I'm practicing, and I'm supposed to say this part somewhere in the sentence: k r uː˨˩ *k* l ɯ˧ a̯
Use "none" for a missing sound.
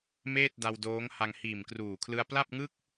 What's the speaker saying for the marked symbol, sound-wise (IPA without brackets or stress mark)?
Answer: kʰ